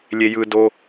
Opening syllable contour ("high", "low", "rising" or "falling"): low